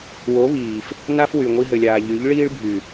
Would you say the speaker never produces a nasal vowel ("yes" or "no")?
yes